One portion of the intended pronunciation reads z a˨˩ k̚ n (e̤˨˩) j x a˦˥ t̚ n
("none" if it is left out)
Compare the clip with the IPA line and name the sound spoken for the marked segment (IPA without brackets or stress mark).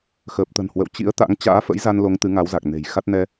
e̤˨˩